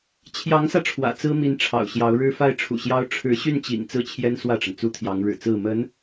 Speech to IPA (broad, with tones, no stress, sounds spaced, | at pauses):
t͡ɕʰ j ɑ˧˥ ŋ s ä˧ ʈ͡ʂʰ w ä̰˨˩ t͡s ɹ̩˥ m i˧˥ n ʈ͡ʂʰ ɑ̰˨˩ ʊ̯ ɕ j ɑ˧˥ ʊ̯ ɻ ɻ̩˥ f a˥˩ ɪ̯ ʈ͡ʂʰ ṵ˨˩ ɕ j ɑ˥ ʊ̯ ʈ͡ʂʰ ɻ̩˧˥ ɕ y˥˩ n t͡ɕ ḭ˨˩ ŋ t͡s ɹ̩˥˩ t͡ɕʰ j ɛ˥ n s w ä˥˩ ʈ͡ʂ ə˩ n t͡s u˥ t̪ʰ j ɑ˧˥ ŋ ɻ ɻ̩˨˩ t͡s ɹ̩˥˩ m ə˧˥ n